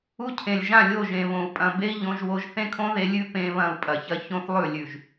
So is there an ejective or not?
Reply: yes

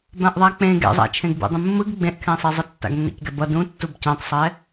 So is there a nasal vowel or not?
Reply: yes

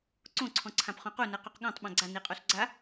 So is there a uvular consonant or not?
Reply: yes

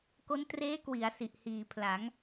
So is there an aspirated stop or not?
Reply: yes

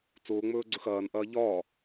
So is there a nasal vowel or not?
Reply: no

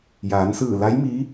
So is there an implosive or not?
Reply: no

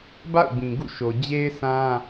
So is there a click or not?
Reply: no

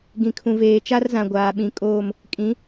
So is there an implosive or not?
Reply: yes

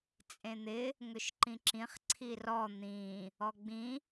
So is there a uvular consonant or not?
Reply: yes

